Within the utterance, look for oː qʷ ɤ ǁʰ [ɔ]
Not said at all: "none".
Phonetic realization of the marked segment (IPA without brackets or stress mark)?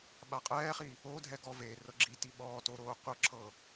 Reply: ɤ